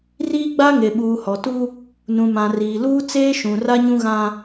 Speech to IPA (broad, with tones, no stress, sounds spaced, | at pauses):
r iː˦ ɡ͡b a˦ ŋ e˨ ɓ uː˨ h ɔ˨ t u˦ | n ũ˨ m ã˨ r iː˨ l uː˦ t͡s eː˦ ʃ ũ˨ r a˦ ɲ ũ˦ ɣ ã˦